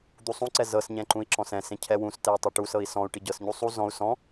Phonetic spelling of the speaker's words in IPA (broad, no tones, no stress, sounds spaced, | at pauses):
d̪ u sˤ ũ ǀ ɛ z ɤ s ɲ ɛ̃ ǃ ũ i̯ ǁ ɔ̃ s ɛ̃ s ẽ cʰ ɛ w ũ s t ɛ u̯ tˤ ɛ ʈ u s ɤ i̯ s ɔ̃ u̯ ʈ i ɟ ɤ s ɲ u sˤ u z ɔ̃ u̯ s ɔ̃